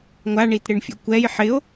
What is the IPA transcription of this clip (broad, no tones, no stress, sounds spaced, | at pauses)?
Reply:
ŋʷ a ɳ i t ɾ ɪ ɳ fʲ o̰ kʷ ɛ j ħ ɪ o̯